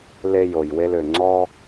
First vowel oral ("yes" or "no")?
yes